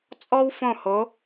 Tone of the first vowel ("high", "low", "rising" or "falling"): high